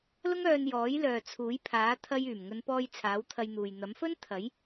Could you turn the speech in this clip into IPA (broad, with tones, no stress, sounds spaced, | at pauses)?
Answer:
l ʊ˥ ŋ œː˧ n j ɔː˨˥ j l œː˨ t͡sʰ uː˨˥ j pʰ aː˨˥ t̪ʰ ɐ˧ j yː˨˩ m ŋ ɵ˨˧ n p ɔː˧ j t͡sʰ aː˨˥ w t̪ʰ ɐ˧ j n̪ uː˨ j n̪ ɐ˨˥ m f ɵ˥ n t̪ʰ ɐ˨˥ j